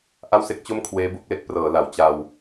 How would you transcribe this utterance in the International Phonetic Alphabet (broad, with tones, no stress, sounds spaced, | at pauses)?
ʔ a˥˩ w s e˦˥ k̚ t͡ɕ o˥˩ m kʰ w eː˦˥ b u˥˩ k̚ l e˥˩ k̚ p r ɤː˩˦ l a˩˦ w t͡ɕ a˧ w